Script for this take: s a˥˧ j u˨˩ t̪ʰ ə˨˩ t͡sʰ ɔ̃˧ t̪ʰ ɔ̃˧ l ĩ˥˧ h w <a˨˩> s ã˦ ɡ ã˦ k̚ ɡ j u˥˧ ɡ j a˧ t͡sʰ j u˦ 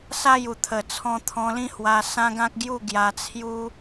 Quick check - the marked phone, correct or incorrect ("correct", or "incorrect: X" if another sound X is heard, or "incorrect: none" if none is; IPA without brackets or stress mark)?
incorrect: a˧